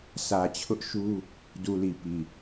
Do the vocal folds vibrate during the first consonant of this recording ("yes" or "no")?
no